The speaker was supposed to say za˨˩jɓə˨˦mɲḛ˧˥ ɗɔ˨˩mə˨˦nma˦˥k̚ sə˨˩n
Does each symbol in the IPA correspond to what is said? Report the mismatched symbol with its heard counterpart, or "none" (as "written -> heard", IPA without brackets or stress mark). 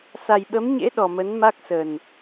z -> s